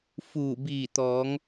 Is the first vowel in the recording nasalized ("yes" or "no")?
no